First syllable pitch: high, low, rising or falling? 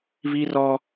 high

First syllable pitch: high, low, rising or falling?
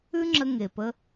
high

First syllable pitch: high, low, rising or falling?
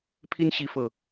high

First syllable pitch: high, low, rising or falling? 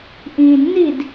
low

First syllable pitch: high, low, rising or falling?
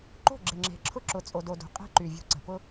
falling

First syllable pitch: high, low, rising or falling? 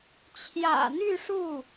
low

